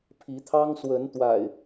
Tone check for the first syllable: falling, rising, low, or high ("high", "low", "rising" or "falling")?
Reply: rising